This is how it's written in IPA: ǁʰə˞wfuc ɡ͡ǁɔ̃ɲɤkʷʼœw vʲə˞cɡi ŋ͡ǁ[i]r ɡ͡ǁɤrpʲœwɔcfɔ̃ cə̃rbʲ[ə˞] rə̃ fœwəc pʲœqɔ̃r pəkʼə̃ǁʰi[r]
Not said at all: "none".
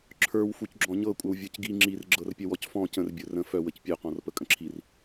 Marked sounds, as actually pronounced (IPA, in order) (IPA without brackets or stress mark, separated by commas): i, ə˞, r